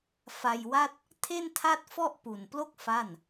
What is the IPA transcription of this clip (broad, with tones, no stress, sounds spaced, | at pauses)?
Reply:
f a˧ j w a˥˩ t̚ | tʰ e˥˩ n tʰ a˥˩ t̚ f ɔ˥˩ ʔ p u˨˩ n p l o˥˩ k̚ f a˥˩ n